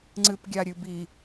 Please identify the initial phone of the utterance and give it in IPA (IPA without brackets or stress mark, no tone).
ŋ͡ǀ